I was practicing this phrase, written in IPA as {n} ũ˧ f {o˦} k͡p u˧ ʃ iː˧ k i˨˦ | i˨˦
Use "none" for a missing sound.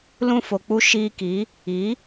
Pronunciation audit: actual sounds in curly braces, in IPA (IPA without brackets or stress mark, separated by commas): l, o˨